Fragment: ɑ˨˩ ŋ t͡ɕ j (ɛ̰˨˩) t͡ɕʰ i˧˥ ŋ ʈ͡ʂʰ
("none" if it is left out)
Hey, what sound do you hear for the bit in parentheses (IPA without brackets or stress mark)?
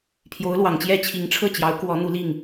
ɛ˥˩